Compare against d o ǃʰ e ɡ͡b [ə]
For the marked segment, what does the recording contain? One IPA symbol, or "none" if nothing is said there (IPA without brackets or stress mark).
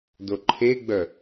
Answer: œ